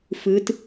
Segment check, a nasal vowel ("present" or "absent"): absent